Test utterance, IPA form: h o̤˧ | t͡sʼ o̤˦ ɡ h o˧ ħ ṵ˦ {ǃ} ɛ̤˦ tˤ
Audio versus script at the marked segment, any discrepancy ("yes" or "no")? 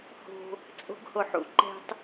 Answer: no